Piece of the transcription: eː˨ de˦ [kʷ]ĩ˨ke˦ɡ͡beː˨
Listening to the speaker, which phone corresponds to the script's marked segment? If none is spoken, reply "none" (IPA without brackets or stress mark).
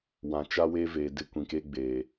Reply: kʷ